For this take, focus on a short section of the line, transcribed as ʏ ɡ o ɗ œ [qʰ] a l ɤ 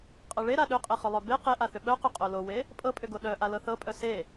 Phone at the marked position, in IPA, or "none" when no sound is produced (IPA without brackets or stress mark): ʔ